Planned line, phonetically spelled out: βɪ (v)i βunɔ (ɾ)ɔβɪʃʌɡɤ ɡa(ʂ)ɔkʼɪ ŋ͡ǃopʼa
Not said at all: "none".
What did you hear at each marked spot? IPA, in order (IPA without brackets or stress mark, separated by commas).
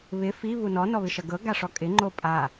f, n, ʂ